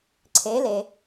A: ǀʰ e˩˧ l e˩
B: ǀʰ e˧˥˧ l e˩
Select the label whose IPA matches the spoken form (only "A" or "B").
A